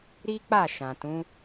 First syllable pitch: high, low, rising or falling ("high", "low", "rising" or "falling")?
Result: high